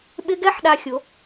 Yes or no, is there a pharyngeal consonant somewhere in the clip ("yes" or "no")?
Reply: yes